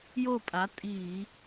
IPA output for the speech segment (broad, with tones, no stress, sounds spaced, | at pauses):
j o˥˩ pʼ a˩˥ tʼ iː˧˩˧